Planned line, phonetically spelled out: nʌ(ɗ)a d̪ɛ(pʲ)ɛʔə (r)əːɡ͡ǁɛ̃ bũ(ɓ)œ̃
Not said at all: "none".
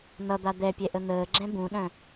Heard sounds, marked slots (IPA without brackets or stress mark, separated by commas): d̪, pʲ, n̪, ɗ